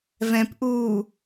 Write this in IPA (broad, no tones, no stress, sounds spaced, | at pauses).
v ɛ̃ p ʔ uː